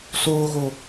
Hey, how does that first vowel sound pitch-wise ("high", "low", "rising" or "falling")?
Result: high